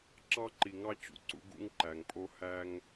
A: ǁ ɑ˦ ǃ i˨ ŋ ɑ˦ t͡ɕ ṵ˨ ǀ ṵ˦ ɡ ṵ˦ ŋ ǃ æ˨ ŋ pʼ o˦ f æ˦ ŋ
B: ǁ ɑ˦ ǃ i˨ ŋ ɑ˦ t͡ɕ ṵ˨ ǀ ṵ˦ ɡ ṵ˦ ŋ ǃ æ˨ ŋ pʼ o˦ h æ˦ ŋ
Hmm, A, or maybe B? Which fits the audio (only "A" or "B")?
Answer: B